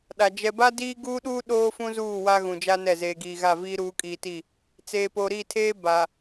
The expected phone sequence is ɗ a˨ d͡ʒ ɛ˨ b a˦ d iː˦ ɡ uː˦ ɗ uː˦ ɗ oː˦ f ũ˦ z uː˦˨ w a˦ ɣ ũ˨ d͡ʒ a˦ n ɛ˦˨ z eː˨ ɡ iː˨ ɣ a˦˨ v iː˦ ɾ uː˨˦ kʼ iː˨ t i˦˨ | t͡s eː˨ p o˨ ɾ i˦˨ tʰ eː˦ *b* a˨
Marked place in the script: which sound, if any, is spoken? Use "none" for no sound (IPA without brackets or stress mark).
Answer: b